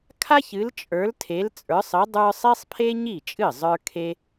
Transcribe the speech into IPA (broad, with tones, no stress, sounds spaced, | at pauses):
kʰ a˥ ç ɨ˨˦ l t͡ʃʼ ə˞˨˦ l tʰ e˨˦ l t͡sʼ ə˞˨˦ sˤ ɨ˨˦ dˤ ə˞˥ sˤ e˥ sˤ pʰ e˥ ɲ i˥˩ t͡ʃʼ ɨ˥˩ zˤ ə˞˥ kʰ e˥